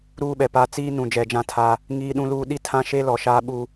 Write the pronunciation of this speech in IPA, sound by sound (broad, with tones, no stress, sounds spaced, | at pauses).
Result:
ɾ uː˦ ɓ ɛ˨ p aː˦ t͡s iː˦ n ũ˨ d͡ʒ ɛ˨ d͡ʒ ã˦ tʰ a˦ | ŋ iː˦ ɗ ũ˦ l uː˦ ɗ i˦ tʰ ã˦ ʃ e˦ l ɔ˨ ʃ aː˦ ɓ u˦